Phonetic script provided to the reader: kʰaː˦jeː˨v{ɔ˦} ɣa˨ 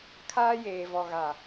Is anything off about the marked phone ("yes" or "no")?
yes